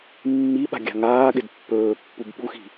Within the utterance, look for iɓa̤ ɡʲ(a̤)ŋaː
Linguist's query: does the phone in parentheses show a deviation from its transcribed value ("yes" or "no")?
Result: no